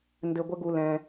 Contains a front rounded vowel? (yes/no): no